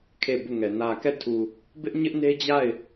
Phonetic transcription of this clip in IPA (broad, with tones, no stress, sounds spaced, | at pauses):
kʰ e˦˨ b u˦˨ ŋ ɛ˨ n ä˨ k ɛ˦˨ tʰ u˨ | b ɪ˦ ʔ ɲ ɪ˦ ʔ n e˦ d͡ʑ a˦˨ ɪ̯